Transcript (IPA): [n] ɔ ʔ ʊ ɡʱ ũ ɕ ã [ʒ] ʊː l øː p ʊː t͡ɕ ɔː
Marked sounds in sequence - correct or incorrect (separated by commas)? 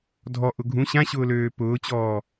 incorrect, incorrect